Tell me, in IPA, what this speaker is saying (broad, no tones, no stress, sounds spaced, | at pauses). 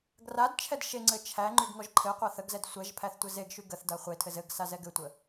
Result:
ɡ r a d t͡ʃʰ ɛ d ʃ e ŋ͡ǀ ɘ t͡ʃʰ æ ŋ͡ǃ y ɡ ŋ ɔ ʒ ǃʰ ɘ qʷ a θ ə ɡ z ɛ d sʷ ɛ ʒ pʰ æ θ tʷ ɘ z e ɡ ʃ y ɡ ə θ d a χʷ e tʰ ɘ z ɘ ɡ s a z ɛ ɡ ɘ tʷ ə